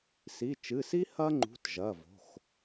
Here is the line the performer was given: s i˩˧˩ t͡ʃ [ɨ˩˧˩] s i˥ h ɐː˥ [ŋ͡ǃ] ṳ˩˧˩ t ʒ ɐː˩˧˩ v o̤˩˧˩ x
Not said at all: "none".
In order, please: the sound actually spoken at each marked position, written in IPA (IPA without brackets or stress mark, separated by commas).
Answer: ɨ˩˧˩, ŋ͡ǃ